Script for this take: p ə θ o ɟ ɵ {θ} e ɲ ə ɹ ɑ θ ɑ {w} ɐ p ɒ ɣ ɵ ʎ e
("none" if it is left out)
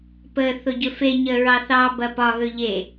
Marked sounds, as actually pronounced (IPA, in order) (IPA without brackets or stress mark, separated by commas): f, b